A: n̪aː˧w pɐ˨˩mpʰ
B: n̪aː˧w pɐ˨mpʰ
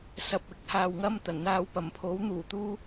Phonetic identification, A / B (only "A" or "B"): A